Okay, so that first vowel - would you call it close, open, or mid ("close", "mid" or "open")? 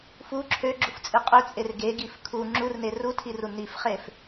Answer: close